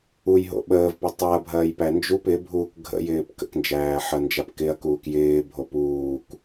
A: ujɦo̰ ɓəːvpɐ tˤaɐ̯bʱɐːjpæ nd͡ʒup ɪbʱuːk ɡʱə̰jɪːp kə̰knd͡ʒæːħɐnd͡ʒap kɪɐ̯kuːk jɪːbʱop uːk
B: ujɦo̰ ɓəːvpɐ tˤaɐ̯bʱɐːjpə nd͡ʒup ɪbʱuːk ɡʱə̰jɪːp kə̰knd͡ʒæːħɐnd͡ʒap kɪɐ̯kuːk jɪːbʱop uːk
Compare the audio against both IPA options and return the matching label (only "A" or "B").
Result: A